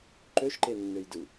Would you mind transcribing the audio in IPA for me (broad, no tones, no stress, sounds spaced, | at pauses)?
ǃ ø ʃ ǃ e nː ø j d ɯ